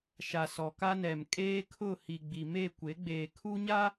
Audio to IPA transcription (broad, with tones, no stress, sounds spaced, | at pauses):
ʃ a˨ s ɔ˨ k a˦ n ɛ˨ m kʼ eː˦ kʰ ʊ˦˨ h i˨ ɡ͡b i˨ m e˦˨ kʷ e˨˦ ɡ͡b eː˨ kʰ u˦ ɲ a˦